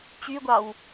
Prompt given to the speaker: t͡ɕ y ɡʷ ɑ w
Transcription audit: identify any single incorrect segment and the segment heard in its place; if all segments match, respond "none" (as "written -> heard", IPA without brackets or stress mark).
none